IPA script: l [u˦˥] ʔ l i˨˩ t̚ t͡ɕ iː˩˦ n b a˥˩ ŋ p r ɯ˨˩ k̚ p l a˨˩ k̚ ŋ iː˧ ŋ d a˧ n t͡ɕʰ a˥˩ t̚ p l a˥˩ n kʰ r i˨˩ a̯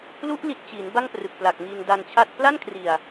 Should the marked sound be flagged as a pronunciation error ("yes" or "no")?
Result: no